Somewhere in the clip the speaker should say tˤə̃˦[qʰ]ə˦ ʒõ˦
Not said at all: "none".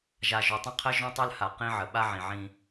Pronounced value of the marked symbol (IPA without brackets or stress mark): qʰ